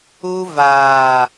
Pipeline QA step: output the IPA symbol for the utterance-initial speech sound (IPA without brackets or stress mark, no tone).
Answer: u